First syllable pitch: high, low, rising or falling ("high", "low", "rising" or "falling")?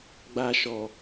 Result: low